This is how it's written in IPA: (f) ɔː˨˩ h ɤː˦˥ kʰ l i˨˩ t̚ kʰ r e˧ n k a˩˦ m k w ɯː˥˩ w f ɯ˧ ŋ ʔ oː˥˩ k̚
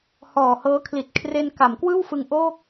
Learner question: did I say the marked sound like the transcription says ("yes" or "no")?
no